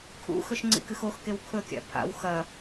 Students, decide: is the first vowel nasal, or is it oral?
oral